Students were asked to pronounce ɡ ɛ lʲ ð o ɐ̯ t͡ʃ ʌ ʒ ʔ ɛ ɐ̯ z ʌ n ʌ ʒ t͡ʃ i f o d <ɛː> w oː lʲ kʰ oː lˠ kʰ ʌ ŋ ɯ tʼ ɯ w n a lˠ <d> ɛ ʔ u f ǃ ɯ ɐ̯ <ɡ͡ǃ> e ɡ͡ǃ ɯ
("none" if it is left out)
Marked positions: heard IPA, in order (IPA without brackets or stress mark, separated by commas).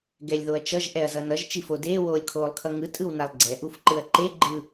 eː, ɡ͡ǀ, ǃ